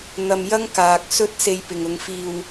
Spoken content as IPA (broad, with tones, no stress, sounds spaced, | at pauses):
n̪ ɐ˧ m j ɐ˥ ŋ k aː˨ k̚ s ɵ˥ t̚ s e˧ j p ɪ˨ ŋ ʊ˨˧ ŋ f iː˧ w